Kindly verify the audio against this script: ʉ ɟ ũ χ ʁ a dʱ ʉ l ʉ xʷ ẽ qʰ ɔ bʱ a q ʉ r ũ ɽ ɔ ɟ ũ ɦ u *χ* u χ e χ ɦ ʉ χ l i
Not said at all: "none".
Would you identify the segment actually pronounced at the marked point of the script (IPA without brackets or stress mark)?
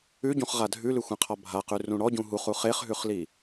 χ